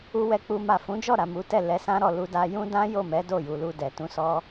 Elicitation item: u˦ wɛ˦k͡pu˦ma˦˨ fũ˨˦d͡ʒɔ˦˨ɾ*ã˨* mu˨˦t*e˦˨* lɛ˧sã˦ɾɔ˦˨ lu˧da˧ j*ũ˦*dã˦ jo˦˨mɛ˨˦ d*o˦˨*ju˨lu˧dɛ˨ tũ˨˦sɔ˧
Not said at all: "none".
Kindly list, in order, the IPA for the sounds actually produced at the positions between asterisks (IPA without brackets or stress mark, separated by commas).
a˨, ɛ˦˨, ũ˦, o˦˨